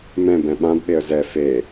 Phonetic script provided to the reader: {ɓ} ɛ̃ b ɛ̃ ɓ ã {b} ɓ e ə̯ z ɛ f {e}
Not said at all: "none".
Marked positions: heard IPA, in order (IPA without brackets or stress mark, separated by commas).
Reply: m, b, e